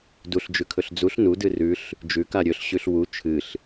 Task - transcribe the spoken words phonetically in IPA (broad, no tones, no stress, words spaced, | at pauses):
duɬd͡ʒʉkʰɵɬ d͡zuɬ nudɨ rʉɬ | d͡ʒʉka ɾʲɵɬɕʉɬ wu t͡ʃʰɨɬ